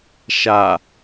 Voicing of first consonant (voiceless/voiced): voiceless